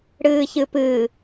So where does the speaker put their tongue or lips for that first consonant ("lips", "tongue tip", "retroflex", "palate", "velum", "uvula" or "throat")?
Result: retroflex